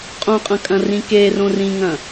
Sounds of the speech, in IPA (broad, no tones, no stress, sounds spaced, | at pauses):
qʼ õ qʼ ɐ̃ kʼ ɐ̃ r ĩ k e r õ r ĩ ŋ ɐ̃